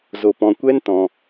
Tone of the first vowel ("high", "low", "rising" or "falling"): low